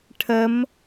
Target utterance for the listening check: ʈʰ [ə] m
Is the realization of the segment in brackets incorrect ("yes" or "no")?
no